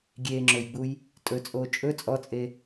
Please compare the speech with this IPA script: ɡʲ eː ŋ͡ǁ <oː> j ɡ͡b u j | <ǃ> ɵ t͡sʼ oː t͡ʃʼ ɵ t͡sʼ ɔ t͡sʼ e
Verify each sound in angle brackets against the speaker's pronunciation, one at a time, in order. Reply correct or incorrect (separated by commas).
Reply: incorrect, incorrect